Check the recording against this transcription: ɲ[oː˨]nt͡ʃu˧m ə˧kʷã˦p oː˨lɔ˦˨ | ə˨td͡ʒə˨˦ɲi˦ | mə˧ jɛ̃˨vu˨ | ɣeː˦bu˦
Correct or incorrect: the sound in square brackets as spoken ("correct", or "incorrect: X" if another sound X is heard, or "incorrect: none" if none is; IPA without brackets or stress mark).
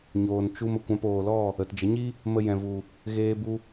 correct